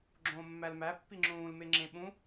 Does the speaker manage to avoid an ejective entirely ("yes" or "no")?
yes